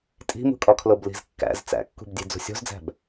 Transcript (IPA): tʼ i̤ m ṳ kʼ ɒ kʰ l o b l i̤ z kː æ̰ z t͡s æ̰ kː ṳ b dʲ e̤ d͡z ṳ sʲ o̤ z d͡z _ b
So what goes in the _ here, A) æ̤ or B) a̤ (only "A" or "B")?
A